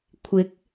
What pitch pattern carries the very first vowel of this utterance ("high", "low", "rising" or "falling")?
rising